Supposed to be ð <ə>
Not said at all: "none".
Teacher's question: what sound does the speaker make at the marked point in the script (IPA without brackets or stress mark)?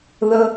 ə